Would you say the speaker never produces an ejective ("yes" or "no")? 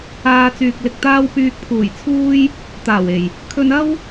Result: yes